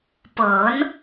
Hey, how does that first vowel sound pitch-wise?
rising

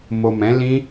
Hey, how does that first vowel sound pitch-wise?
low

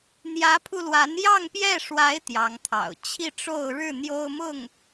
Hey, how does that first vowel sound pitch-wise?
rising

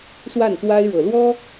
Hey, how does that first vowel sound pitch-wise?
falling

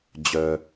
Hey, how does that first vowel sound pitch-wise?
low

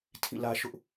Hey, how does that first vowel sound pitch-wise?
falling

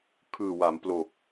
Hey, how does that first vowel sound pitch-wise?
low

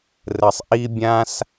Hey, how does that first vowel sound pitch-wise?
low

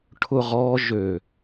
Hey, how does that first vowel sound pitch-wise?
falling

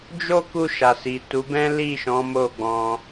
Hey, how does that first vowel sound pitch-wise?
high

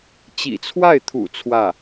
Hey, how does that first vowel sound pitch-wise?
low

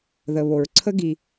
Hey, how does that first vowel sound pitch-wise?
low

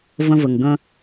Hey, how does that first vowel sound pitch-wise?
high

